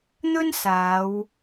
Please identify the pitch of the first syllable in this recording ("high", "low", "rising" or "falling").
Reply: high